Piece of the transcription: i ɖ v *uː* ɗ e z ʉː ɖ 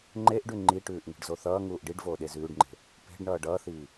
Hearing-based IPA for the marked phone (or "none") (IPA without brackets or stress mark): oː